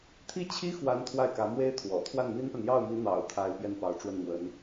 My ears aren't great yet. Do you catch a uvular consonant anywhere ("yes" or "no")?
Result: no